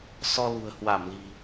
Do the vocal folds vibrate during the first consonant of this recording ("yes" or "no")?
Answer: no